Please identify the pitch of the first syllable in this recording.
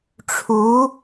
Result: rising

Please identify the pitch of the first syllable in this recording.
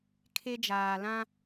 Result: high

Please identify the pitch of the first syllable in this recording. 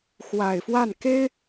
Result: low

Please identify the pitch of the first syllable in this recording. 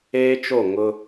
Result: high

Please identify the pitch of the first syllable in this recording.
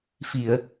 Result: low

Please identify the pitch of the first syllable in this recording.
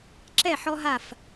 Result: falling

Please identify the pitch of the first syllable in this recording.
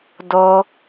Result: high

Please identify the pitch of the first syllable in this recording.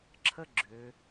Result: high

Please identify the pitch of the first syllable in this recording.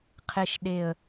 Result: low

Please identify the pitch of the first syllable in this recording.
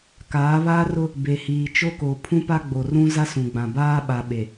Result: rising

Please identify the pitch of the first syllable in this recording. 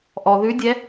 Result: low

